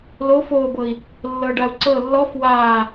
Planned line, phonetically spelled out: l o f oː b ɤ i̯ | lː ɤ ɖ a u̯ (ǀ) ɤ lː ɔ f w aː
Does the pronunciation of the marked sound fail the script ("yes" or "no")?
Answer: no